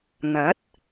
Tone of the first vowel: rising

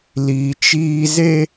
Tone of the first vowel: high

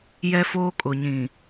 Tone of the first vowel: high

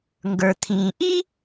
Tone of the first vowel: low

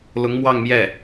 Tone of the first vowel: rising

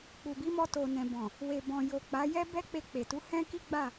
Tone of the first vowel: low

